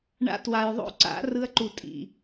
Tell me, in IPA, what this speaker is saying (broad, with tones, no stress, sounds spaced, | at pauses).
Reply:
ɳ a̰˦ t w a˨ j ðˤ o̰˦ ǀ a̰˨˦ r ɯ˦ ɐ̯ ǃ u˨ tʼ ḭ˨